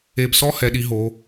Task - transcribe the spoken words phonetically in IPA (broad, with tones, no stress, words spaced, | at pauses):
e˧bsɔ˥hɛ˩˧ɗi˩˧ ɦo˩˧